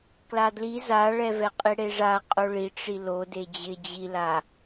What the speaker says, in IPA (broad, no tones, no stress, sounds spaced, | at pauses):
k l a d l i z a ɭ ɛ v ɛ qʼ i ɽ e ʐ a qʼ o ɭ i ʈ͡ʂ i l o d e d͡ʑ ɪ d͡ʑ i l a